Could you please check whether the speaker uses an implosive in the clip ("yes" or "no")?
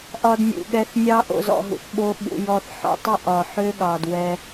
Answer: yes